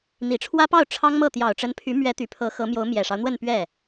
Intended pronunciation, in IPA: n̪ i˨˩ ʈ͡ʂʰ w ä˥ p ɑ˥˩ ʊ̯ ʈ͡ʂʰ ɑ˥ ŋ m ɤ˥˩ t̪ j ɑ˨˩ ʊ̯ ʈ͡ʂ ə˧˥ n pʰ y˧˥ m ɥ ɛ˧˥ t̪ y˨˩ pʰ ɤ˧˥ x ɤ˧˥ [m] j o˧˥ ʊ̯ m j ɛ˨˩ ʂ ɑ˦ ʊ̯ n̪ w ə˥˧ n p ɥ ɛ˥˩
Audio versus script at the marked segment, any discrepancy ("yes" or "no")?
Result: no